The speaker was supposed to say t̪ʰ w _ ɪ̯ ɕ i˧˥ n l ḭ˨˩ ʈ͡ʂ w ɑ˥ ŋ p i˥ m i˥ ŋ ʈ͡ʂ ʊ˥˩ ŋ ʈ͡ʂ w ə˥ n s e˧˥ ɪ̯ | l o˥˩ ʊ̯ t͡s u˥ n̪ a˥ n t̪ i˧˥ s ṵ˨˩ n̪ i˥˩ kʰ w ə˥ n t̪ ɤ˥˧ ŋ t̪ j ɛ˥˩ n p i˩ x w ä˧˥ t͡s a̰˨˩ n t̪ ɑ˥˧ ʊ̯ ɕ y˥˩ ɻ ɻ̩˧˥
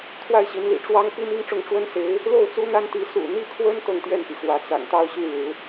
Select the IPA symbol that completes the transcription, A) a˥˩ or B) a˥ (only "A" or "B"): A